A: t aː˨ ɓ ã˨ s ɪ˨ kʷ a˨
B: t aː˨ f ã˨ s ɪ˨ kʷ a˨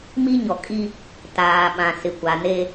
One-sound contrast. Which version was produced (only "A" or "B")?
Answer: A